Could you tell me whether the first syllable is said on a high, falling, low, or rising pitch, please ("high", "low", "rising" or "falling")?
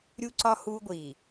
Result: high